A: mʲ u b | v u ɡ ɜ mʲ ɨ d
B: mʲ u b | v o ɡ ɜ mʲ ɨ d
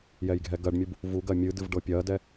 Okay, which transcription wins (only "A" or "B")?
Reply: A